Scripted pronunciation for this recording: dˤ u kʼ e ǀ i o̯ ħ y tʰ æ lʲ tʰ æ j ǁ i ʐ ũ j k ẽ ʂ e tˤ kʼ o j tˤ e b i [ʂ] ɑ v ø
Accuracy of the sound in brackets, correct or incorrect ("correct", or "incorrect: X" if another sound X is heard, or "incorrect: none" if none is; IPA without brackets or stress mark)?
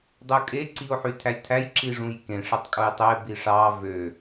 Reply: correct